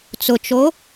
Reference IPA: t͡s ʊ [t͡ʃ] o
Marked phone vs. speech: correct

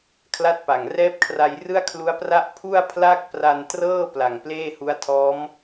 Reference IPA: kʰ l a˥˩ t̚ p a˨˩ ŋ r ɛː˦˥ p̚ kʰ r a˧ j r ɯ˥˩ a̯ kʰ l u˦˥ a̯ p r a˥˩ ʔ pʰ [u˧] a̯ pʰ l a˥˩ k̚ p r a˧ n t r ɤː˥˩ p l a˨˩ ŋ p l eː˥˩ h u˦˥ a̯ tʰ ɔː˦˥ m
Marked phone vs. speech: incorrect: u˥˩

